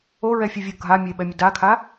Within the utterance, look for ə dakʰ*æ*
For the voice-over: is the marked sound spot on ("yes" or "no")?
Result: no